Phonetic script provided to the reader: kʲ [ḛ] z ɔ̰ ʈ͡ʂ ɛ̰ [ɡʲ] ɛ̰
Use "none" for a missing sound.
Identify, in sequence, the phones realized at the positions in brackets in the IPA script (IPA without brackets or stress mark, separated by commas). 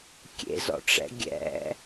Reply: ḛ, ɡʲ